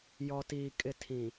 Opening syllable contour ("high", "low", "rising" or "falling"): low